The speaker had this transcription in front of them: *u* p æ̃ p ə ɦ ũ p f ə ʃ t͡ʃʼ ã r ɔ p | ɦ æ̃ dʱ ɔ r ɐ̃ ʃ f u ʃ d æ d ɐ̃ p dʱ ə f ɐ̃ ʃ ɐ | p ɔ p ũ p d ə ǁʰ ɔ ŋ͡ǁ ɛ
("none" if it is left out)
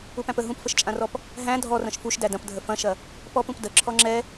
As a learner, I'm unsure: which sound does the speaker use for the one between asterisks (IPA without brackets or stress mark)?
u